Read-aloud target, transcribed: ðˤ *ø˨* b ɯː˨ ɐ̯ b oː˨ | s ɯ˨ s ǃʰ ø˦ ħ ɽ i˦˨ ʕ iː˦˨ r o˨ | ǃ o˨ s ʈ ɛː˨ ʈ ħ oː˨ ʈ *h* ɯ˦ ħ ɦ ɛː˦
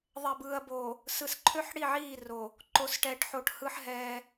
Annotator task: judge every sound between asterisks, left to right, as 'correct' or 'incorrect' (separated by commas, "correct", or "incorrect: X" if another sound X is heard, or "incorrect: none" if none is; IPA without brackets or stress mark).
incorrect: ɛ˨, correct